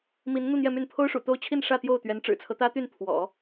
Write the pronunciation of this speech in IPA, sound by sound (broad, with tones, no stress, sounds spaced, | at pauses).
m i˧˥ n n̪ u˥˧ n̪ j ɛ˥˧ m y˥˩ n pʰ o˥ ʊ̯ ʂ ṵ˨˩ t̪ o˥˧ ʊ̯ t͡ɕʰ i˥˧ n ʂ ä˥˧ t̪ j o˥˩ ʊ̯ t̪ ɥ ɛ˧˥ n ʈ͡ʂ ɻ̩˨˩ t͡sʰ ɤ˦ t̪ ä˥ t̪ y˥˩ n pʰ w ɔ̰˨˩˦